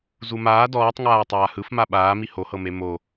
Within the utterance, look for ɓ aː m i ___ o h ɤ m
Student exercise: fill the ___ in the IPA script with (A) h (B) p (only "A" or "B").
A